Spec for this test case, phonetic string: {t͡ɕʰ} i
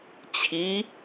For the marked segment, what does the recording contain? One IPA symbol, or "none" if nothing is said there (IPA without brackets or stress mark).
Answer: t͡ɕʰ